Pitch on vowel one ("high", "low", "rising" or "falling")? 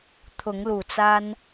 rising